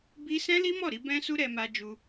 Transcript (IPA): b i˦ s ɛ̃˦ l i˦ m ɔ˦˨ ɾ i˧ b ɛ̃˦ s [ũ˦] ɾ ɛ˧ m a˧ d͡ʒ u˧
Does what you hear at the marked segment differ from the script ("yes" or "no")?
yes